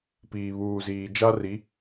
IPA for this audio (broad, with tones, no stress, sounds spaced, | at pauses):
p iː˨ β uː˨ z iː˨ d͡ʒ a˦ r i˨˦